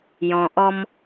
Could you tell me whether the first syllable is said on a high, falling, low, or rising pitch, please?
low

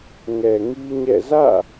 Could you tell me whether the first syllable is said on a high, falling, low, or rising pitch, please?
low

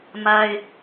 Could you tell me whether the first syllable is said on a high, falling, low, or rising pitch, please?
high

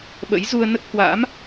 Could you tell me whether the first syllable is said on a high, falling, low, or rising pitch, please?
rising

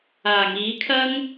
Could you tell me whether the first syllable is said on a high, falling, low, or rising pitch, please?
low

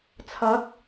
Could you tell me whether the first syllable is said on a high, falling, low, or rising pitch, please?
rising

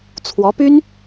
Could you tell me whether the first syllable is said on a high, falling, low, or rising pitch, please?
rising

